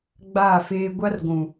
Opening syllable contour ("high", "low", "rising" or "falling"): falling